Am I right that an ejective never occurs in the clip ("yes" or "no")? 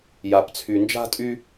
no